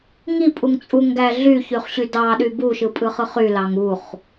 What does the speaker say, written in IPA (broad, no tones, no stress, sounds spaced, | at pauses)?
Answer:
ŋ i pʼ u ŋ t͡sʼ u ŋ ɡ æ ɮ y ç y χ ɕ y d ɑ ɗ y b u ʃ ɯ pʼ ɯ χ ɯ χ y l ɑ ŋ u χ